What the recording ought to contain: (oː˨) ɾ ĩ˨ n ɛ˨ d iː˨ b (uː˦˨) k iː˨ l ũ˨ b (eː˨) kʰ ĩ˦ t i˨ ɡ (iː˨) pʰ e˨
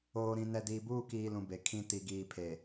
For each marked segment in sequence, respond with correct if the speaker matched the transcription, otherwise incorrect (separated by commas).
correct, correct, incorrect, correct